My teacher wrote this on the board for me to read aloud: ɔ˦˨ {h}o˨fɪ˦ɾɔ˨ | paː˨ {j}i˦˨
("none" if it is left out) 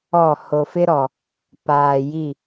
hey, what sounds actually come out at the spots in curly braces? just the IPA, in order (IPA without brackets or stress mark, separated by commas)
h, j